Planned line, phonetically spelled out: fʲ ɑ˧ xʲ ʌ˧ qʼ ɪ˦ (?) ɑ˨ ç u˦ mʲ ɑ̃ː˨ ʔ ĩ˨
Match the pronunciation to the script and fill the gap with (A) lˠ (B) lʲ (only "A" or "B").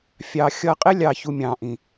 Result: B